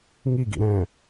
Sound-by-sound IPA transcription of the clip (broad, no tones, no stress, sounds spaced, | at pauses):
ŋ i ɡ ḭ ɾ ɛ̃